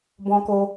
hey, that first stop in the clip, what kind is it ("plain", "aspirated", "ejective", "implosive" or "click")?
plain